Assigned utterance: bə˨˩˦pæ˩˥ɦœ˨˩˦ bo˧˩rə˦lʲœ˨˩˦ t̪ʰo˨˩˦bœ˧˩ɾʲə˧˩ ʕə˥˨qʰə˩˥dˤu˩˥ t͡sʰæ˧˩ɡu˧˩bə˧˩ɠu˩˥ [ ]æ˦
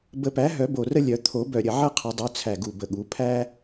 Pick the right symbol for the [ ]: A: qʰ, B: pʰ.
B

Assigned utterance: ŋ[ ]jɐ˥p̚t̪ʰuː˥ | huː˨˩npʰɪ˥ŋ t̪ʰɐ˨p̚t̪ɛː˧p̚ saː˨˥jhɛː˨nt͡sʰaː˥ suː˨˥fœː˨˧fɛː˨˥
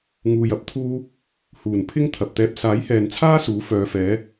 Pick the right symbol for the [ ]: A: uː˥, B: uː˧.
B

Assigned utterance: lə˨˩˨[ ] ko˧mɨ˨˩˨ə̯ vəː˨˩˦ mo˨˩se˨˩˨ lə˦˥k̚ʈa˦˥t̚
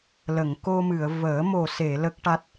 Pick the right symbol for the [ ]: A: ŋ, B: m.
A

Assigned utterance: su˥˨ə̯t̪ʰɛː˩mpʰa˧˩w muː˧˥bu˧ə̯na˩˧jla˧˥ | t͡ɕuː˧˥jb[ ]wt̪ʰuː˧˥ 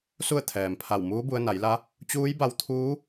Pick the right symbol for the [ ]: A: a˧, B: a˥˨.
A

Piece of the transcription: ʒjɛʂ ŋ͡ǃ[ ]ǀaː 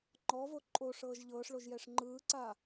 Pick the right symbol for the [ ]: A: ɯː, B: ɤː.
A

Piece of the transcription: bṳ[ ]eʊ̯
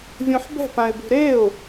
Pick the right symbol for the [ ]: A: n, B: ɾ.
B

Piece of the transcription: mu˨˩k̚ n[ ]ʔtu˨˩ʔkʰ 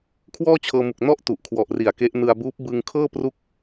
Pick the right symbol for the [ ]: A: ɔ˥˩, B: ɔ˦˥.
A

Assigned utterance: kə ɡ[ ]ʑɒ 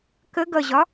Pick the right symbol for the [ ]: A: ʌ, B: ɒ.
A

